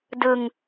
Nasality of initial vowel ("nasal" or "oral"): oral